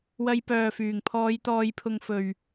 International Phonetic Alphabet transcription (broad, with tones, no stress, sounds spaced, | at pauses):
w ɐ˧ j p œː˨ f yː˨˩ ŋ pʰ ɔː˨˧ j t̪ ɔː˨˧ j pʰ ʊ˨ ŋ f ɵ˨˩ ɥ